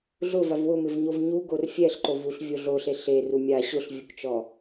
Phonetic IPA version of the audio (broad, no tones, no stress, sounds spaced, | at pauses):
ɮ ʊ v a v w ʊ m ɪ v ɲ o v ɲ u ɡ o r fʲ ɛ ɬ ǃ o v u ɬ vʲ o ɮ o ɬ e ɬ e r u mʲ a ɕ ʊ ɬ vʲ u k t͡ʃ ɔ